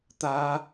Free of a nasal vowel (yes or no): yes